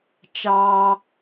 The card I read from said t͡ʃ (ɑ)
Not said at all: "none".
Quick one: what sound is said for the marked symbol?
ɑ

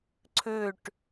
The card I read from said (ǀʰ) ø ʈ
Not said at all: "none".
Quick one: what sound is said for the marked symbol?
ǀʰ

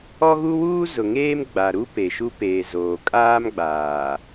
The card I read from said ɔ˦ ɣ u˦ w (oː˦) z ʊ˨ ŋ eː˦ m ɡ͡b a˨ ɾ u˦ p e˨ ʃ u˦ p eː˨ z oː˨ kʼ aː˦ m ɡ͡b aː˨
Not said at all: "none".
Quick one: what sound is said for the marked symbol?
uː˦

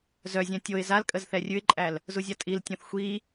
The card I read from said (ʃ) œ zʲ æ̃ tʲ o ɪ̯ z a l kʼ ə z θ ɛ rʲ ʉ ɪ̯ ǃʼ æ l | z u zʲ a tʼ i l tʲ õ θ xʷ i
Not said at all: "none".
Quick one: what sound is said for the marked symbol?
z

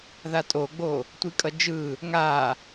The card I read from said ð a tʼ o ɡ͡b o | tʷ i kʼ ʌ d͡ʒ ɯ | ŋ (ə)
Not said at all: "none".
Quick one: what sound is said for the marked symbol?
a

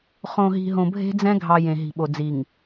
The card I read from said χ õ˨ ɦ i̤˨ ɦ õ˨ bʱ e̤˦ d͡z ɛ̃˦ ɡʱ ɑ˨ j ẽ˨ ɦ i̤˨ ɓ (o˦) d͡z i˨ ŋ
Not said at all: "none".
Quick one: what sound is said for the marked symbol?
o˨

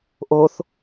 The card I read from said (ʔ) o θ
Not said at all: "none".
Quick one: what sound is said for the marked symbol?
ʔ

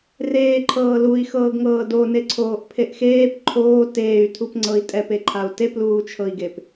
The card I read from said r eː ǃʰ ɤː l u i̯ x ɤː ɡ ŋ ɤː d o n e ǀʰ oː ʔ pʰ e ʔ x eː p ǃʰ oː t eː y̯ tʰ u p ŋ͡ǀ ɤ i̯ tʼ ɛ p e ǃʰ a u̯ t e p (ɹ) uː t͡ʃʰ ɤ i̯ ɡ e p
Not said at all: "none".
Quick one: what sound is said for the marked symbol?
l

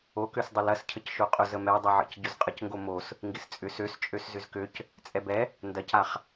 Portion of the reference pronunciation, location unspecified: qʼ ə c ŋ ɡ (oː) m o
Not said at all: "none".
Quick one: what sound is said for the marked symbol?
o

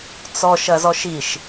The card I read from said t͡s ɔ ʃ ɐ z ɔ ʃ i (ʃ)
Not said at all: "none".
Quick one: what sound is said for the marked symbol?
ʃ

